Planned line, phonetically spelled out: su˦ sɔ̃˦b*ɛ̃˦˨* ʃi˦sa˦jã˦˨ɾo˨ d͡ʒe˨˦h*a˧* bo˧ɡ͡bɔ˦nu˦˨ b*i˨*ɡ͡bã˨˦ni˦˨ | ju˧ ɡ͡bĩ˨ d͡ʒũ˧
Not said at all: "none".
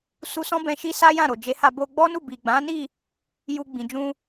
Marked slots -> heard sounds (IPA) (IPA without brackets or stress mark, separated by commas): ɛ̃˧, a˧, i˨